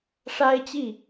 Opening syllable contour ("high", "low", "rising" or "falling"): high